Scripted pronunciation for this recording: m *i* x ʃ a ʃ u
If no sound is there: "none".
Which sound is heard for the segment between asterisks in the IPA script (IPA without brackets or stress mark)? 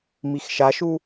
i